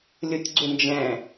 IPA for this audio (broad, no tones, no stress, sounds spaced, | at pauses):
lʲ u tʲ ɡ͡ǀ u n d͡ʒ ɛ̃